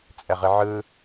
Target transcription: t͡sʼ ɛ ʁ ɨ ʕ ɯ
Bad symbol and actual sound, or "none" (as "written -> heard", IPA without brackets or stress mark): none